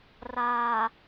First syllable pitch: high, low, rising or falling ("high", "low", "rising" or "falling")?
low